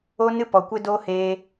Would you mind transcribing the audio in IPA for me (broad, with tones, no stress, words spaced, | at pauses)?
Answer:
o˧nɨ˧ pɔ˨kʷe˧doː˧ heː˧